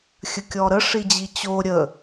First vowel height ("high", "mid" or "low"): mid